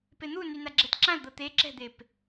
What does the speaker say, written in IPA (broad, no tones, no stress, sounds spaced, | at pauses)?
p e n̪ u n y n a ɡ͡ǁ ɛ t ǁ ã l d̪ ɤ t̪ e ǁ ɛ̤ d̪ e p